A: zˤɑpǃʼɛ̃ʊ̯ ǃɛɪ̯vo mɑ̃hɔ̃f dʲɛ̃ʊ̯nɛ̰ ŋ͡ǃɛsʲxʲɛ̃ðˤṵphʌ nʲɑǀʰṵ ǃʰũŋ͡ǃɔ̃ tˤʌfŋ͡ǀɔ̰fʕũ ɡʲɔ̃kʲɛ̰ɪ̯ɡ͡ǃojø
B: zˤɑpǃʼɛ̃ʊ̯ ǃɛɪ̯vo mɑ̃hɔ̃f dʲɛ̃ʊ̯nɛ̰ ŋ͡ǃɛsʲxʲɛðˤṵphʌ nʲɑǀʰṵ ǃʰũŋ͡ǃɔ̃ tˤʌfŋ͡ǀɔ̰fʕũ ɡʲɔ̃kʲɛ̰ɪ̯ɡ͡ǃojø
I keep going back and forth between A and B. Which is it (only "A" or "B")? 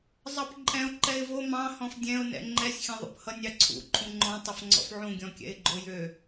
A